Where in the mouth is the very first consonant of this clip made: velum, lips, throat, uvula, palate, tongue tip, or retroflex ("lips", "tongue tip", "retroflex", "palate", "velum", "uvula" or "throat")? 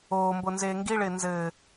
lips